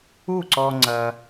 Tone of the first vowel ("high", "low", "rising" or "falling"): falling